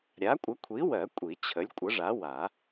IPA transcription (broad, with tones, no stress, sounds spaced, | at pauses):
ɾʲ a˨˥ kʷʼ ə˨˥ kʷʰ i˨˥ w ɜ˨˩˦ kʷʼ i˨˩˦ t͡ɕʰ ə˨˥ lʲ kʷʼ ə˨˥ ʐ a˨˥ w a˨˩˦